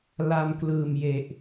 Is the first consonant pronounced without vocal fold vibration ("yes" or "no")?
no